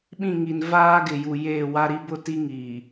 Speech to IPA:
ɓĩ˦˨ŋi˨nvaː˦ ɡɪ˨ju˨ jeː˦˨wa˦ ɾi˦bʊ˦ ti˦ŋiː˨

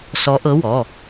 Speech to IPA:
sɔ˨˦ʔɤ˨˦wɔ˩˧˩

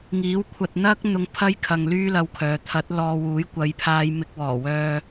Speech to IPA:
ŋiː˨˥w kʷʰɐ˨t̚ n̪ɐ˥k̚ n̪ʊ˧ŋpʰɐ˥jkʰɐ˨ŋ lyː˥lɐ˧wkʰœː˨ t̪ʰɐ˨˥t̚ lɔː˧ wuː˨˥jkʷɐ˨˧jpʰaː˧j mɪ˧k̚wɔː˨˩wœː˧

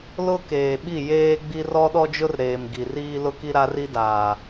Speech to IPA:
lʊ˦ keː˨ɓi˦˨jeː˦ɡ͡bi˦ rɔ˦ɗɔ˦d͡ʒʊ˦rɾeː˨m ɡi˨riː˦lʊ˦ki˦ ɾa˦ri˦daː˨

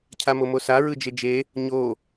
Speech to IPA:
cʰamomosa ɹɯd͡ʒed͡ʒe | ɲo

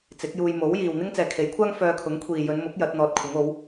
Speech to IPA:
t͡sɪ˨˥k̚juː˧j mo˨˥wjiː˨w n̪ɪ˥ŋt͡sɛː˨kʰe˨˥jkʷʰaː˥ŋ fœː˧kʰʊ˨˥ŋ kʷʰiː˨jɵ˨˧nmʊ˨˥k̚ jɐ˨˥t̚n̪ɔː˧t̚kʷʰɪ˨˥ŋo˨˥w

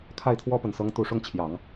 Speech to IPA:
kʰa˥˩ɪ̯t̪ʰwɔ˥pə˨˩nsɤ˧˥ŋ t̪u˨˩ʂʊ˥˩ŋt͡ɕʰjɑ˨˩˦ŋ

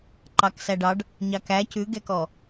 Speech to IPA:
ǃɑksæɖɑɖ | ɲɑkæ cʉɡɛkɔ

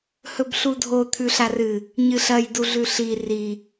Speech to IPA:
hɵbɬudʱo t̪ʰʉɬarɨ | ɲɨɬɐj duɮʉɬi ri

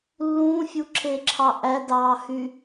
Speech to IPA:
lːũːfʲuǁʰeǁʰɑ ʔædɑːhy

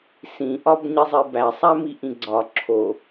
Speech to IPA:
sĩʔɒb ɲizˤibæsˤæ miʔĩɡ͡ǀɒ ǁʰo

